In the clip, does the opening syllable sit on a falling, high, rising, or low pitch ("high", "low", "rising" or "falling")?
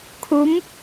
rising